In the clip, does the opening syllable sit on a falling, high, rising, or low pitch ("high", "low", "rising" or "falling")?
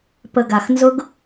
low